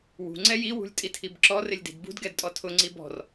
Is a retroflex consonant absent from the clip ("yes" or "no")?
yes